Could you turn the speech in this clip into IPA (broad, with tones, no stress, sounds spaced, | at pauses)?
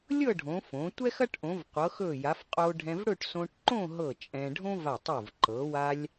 lʲ ɤ˥˧ ɖʱ õ˩˧ f õ˩˧ tʷ ɛ˥ x ɐ˥ ʈ ʔ õ˩˧ v qʷ ɤ˩˧ x ɵ˧˩ j a˩˧ f qʼ o˧ ɖʱ ɛ̃˧ v ɽ ɵ˥˧ ʈ s õ˧ ʈ ǃ õ˥˧ ɦ ɤ˧˩ t͡ʃʼ ɛ̃˧ ɖʱ õ˥ v a˧˩ tˤ o˧˩ v ǃ ɤ˩˧ w a˧ lʲ